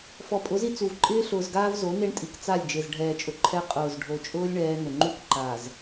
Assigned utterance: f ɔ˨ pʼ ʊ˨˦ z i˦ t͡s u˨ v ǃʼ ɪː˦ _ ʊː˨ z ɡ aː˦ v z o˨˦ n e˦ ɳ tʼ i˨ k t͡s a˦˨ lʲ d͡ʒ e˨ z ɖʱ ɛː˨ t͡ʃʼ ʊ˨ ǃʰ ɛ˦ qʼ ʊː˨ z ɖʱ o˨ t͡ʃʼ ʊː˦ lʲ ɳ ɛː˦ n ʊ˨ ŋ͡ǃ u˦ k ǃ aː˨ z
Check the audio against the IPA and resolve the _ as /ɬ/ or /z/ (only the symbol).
ɬ